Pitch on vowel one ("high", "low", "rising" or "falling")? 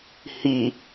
low